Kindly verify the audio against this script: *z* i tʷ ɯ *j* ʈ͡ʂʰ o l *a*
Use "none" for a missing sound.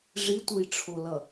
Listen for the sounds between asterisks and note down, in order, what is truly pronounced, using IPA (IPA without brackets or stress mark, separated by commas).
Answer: ʐ, j, ʌ